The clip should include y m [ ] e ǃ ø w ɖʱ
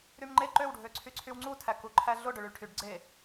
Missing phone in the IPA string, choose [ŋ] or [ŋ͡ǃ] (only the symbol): ŋ͡ǃ